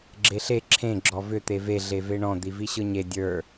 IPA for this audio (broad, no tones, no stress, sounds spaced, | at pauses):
ɡ͡ǁ e ɬ e ǁʰ ẽ ɡ͡ǁ ɔ v ʏ t̪ e v e ɮ e v e ɳ ɔ̃ d̪ i v i ɕ ɯ ɲ e dʲ ə˞